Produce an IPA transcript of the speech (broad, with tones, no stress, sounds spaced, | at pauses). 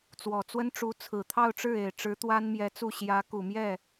t͡s w ɔ˨˩ t͡s w ə˥ n ʈ͡ʂ u˧˥ t͡sʰ ɹ̩˨˩ t̪ʰ ɑ˥˧ ʊ̯ ʈ͡ʂ ɻ̩˥˩ e˨˩ ɪ̯ ʈ͡ʂ ɻ̩˧˥ t̪ w a˥ n m j ɛ˧˥ t͡s u˥˩ ɕ j ä˧˥ k u˨˩ m j ɛ˥˩